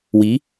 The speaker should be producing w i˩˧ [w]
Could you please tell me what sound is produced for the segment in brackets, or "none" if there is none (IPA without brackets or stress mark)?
none